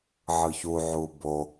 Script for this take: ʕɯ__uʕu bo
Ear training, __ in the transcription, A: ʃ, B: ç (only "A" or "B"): B